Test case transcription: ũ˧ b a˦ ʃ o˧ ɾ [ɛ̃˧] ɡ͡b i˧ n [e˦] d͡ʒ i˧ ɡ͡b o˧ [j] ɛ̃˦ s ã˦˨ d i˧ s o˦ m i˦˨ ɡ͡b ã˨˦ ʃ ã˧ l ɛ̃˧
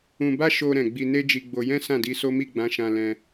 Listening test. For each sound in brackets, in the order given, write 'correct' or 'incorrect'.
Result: incorrect: ɛ̃˨, correct, correct

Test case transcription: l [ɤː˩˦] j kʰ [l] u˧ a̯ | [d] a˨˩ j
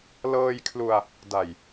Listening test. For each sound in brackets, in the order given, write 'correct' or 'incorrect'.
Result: incorrect: ɤː˧, correct, correct

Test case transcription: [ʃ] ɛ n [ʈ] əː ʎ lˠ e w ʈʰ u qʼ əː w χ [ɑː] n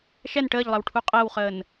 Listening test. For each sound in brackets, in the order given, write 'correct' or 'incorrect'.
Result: correct, correct, incorrect: əː

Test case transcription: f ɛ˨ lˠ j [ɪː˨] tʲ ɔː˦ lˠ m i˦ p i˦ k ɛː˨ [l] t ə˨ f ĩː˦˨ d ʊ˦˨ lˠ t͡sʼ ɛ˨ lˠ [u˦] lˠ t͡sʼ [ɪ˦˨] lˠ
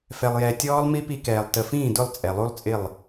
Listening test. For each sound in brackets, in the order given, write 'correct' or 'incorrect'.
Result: incorrect: ɛː˨, incorrect: lˠ, correct, correct

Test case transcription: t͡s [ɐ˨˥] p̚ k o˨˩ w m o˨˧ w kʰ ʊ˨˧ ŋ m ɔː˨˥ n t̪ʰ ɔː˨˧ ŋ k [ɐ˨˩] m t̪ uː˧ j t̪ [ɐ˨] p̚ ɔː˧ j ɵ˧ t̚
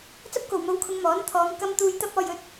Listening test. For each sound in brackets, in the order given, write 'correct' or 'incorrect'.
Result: incorrect: ɐ˥, incorrect: ɐ˥, incorrect: ɐ˥

